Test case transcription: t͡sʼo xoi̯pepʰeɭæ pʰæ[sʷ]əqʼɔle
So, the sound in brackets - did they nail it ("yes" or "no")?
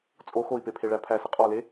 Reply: no